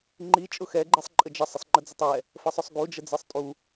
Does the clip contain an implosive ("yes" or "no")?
no